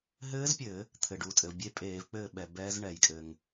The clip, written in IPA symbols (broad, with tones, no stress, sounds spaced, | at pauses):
ɦ ɘː˦˥ z pʲ ɘ˧˩˧ | t̪ʰ ɘ˩ ɖ uː˩ tʼ ɘ˩ v bʲ e˥˨ pʼ eː˧˩˧ v k͡p ɘː˥˨ ɓ ɛ˩ b ɛː˦˥ z ɳ ɛ˧˩˧ j kʼ ɘ˩ ŋ